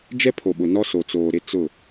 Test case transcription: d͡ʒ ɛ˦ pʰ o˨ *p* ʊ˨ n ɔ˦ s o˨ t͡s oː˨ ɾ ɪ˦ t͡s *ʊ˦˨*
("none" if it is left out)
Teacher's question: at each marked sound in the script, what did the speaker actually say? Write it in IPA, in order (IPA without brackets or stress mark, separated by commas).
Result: ɓ, ʊ˦˨